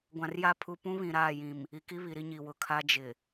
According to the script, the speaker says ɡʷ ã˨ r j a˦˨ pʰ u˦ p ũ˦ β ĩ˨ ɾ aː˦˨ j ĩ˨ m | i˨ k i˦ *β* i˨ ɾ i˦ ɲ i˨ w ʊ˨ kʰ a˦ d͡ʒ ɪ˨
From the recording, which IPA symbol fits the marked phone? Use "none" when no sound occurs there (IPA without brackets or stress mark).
β